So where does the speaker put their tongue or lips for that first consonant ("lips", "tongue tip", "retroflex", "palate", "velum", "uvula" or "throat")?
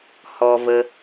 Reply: throat